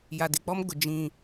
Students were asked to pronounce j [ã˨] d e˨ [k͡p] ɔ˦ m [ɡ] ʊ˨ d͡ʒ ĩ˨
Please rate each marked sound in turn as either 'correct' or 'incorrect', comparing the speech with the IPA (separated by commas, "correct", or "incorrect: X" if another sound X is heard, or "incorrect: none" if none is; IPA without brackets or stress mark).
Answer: incorrect: a˨, correct, correct